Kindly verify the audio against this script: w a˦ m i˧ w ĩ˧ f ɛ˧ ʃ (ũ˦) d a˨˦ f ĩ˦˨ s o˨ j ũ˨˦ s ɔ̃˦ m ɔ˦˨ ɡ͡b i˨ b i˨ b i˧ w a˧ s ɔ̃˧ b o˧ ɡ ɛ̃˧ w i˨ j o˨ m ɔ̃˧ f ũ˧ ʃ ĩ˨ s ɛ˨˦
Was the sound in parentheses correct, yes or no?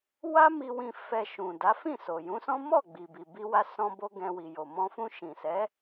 no